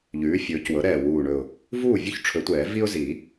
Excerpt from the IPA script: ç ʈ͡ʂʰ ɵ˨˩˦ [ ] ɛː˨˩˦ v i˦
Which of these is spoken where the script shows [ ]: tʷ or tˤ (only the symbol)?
tʷ